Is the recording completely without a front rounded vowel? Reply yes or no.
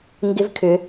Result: no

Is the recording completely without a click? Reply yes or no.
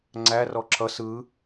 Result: no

